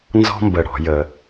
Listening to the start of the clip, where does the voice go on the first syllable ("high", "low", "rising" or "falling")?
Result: high